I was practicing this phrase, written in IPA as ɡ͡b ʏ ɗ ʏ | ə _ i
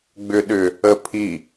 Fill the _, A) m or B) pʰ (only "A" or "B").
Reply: B